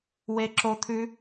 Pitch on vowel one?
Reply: high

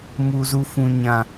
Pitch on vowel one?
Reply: high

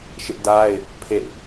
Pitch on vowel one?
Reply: high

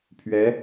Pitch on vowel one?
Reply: rising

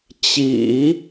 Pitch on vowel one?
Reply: low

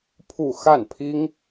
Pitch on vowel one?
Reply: falling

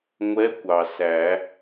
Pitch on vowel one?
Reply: rising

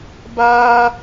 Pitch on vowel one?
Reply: high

